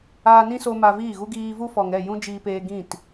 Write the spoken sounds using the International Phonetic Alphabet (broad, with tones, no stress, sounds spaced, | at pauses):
aː˧ n ĩ˦ s o˧ m a˧ v iː˦˨ ɣ u˦ ɡ iː˧ v u˦ f ɔ˨ ŋ ɛ˦˨ j ũ˦ d͡ʒ iː˧ p eː˧ ɡ ĩ˦˨ t